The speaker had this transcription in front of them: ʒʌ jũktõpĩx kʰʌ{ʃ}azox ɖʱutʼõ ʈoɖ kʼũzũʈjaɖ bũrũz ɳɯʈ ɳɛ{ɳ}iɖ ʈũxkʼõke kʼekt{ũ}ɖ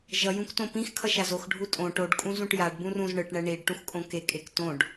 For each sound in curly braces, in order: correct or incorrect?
correct, correct, incorrect

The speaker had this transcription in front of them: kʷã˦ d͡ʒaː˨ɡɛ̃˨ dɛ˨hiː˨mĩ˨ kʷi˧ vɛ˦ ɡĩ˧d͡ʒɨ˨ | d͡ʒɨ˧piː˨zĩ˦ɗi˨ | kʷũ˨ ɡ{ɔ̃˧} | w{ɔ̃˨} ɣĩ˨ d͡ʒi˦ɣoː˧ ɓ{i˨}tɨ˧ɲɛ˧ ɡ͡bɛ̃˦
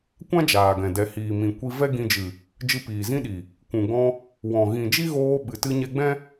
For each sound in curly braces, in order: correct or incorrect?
correct, correct, incorrect

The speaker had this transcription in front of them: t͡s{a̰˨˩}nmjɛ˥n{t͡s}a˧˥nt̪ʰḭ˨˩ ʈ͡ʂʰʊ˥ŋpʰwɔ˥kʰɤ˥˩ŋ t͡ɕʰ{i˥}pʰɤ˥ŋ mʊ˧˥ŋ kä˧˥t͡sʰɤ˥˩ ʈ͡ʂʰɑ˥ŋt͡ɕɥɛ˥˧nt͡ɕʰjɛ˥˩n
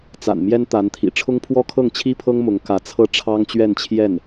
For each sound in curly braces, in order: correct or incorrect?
correct, incorrect, correct

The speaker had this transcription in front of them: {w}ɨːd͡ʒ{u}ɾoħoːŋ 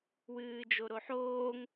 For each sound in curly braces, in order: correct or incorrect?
correct, incorrect

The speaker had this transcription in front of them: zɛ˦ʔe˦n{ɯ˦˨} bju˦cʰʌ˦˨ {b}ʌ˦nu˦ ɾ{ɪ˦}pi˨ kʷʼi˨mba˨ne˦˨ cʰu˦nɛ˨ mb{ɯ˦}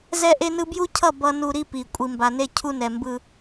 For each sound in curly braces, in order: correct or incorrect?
incorrect, correct, incorrect, correct

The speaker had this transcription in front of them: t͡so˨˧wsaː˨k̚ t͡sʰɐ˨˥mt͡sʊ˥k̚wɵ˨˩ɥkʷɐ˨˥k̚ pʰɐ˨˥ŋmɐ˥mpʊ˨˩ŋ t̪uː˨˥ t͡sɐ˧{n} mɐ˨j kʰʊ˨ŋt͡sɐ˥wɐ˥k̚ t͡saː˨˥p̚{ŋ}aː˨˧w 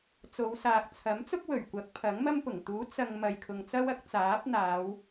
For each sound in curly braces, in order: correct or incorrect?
incorrect, incorrect

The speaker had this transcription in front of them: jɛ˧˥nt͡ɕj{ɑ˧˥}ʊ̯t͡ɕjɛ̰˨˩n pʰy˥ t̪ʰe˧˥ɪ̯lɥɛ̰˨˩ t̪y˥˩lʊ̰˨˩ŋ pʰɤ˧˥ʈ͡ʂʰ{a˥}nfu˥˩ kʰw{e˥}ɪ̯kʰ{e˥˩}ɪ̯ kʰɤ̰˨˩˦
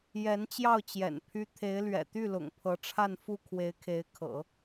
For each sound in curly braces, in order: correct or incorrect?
incorrect, incorrect, incorrect, incorrect

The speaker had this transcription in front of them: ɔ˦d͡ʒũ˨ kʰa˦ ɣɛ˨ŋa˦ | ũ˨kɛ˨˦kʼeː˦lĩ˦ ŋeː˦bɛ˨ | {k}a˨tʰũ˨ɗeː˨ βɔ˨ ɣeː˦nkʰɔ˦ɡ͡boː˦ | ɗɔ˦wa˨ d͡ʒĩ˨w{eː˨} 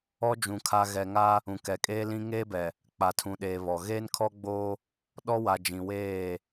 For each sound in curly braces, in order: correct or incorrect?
incorrect, incorrect

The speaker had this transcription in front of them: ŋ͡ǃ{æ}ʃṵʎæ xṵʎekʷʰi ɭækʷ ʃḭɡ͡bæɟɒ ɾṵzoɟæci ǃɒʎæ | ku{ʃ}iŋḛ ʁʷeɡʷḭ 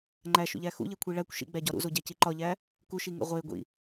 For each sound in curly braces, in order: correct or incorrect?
correct, correct

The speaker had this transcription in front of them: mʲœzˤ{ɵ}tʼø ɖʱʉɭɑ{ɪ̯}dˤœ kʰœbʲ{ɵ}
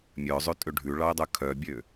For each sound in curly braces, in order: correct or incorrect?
incorrect, incorrect, incorrect

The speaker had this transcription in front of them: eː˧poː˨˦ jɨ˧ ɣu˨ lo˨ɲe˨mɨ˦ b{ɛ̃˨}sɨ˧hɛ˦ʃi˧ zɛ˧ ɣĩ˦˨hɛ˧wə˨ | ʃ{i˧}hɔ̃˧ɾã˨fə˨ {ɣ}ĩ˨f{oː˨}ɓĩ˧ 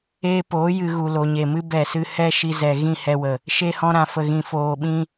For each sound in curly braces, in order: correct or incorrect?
incorrect, incorrect, correct, correct

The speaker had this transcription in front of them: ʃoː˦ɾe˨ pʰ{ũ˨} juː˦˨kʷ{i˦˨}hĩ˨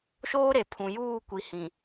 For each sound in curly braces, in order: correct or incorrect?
correct, incorrect

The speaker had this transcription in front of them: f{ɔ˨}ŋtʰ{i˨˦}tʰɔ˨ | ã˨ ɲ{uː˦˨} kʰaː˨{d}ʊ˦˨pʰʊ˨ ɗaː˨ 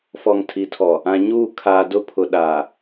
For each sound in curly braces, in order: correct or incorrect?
correct, correct, correct, correct

